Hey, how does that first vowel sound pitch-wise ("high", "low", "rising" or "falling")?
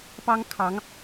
high